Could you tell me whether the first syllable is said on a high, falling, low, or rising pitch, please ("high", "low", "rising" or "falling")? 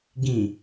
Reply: low